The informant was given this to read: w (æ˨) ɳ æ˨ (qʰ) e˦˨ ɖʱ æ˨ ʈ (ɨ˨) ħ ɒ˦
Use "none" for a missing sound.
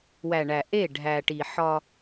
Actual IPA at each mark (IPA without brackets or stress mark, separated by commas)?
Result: æ˨, ʔ, i˨